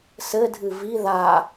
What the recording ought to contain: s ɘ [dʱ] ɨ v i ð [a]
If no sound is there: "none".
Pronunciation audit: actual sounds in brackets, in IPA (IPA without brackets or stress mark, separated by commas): dʱ, a